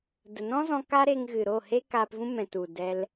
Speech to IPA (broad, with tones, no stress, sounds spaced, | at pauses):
d ə˨ n ɔ̃˦ z ɔ̃˧ k a˦ ɾ e˧ ŋ ɣ ɨ˨ ɾ o˦˨ h e˦ k aː˧ p v ũ˦ m ɛ̃˨ t u˨ d ɛ˧ l